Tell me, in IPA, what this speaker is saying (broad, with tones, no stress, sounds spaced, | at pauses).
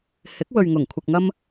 h ɪ˨˥ k̚ w ɵ˨ ɥ ŋ ʊ˨˩ ŋ kʷʰ ɪ˨ k̚ ŋ ɐ˥ m